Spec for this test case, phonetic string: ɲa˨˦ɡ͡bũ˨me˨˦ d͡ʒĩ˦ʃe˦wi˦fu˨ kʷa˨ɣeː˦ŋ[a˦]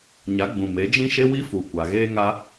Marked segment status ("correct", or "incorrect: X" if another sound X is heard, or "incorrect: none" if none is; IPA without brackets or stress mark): correct